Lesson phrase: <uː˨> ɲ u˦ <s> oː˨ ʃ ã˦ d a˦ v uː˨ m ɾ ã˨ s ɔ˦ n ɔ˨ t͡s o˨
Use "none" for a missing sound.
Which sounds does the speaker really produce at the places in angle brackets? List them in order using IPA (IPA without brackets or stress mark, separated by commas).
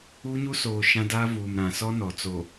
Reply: uː˦, s